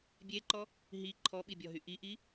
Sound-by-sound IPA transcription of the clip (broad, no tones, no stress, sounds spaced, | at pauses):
bʲ e ǃ ɔ | ɦ i ǃʰ ɔ ɓ i bʲ ɔ ɦ y ʔ i ʔ i